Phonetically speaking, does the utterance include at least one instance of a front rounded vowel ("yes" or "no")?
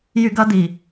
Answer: yes